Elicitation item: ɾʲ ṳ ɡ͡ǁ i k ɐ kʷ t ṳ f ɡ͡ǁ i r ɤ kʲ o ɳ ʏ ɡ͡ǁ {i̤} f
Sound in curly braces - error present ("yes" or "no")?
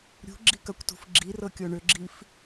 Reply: yes